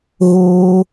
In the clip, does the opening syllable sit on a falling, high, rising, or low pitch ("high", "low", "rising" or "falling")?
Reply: high